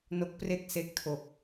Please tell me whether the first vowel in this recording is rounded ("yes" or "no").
yes